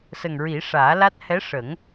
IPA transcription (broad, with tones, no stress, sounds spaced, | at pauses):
s ə˨˩ ŋ ɹ i˨˩˦ ʂ aː˨˩˦ l a˦˥ t̚ h ɛ˧˥ ʂ ə˨˩˦ ŋ